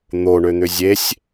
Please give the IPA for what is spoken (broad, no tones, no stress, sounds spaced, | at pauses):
n̪ o ɳ ø n̪ ʏ zʲ e sʲ